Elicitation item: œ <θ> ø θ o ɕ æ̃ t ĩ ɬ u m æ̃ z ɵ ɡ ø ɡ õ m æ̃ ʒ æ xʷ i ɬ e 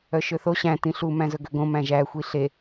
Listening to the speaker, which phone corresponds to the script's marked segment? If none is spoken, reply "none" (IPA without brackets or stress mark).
ʃ